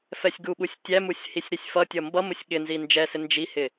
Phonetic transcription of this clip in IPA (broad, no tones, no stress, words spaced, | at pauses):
fɛsʲɡuɓusʲ tʲæmusʲ hisʲɾisʲfʌtʲʌ mbʌmʊsʲ ɠɪnzi nd͡ʒɛsɪ nd͡ʒihɪ